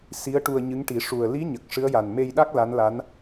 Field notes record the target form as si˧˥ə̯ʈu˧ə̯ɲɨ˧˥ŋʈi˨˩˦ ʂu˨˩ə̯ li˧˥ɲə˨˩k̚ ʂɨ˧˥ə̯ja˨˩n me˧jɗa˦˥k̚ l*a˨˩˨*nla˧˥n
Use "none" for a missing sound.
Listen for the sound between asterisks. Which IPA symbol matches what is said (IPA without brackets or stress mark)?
a˧˥